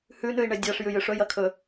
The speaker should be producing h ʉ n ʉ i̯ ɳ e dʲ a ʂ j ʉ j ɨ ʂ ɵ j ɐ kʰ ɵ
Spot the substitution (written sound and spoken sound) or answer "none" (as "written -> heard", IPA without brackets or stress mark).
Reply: none